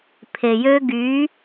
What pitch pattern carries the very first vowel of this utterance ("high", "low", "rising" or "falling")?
low